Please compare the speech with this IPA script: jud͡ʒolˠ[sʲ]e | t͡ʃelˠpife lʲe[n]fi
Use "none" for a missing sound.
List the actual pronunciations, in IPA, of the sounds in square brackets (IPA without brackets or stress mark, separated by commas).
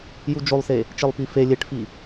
s, ʈ